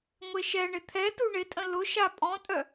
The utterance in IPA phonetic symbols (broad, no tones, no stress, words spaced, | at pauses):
ŋʷeʃɛɳɪ t̪ʰɛ tuɳɪtʼə̃ lʊ ʃapʼɔ̃tʼœ